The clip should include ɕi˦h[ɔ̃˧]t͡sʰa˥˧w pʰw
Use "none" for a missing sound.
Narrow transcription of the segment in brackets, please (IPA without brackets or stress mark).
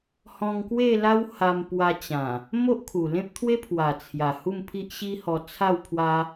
ɔ˧